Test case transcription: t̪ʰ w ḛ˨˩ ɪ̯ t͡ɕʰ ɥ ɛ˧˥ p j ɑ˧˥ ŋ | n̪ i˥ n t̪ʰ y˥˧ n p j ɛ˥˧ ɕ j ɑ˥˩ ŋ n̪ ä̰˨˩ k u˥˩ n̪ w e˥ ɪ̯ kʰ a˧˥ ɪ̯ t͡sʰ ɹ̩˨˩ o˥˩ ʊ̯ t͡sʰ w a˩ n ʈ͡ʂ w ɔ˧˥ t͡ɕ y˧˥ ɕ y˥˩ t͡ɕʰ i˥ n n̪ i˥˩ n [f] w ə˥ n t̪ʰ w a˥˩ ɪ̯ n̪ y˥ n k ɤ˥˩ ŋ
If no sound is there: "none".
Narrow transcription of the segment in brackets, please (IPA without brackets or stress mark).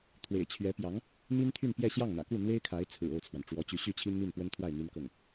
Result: p